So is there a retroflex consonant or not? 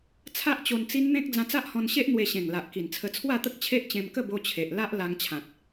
no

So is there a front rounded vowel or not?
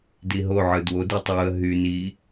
yes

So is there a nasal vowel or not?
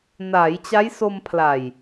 no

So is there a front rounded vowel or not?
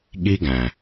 no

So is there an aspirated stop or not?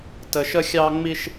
no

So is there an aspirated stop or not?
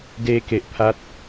yes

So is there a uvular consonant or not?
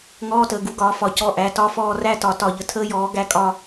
no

